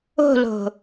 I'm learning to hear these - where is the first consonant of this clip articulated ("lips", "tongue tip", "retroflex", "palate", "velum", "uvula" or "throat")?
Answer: tongue tip